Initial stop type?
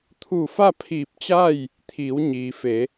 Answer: aspirated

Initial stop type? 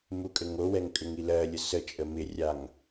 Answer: ejective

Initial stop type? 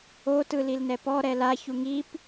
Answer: plain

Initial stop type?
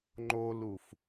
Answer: click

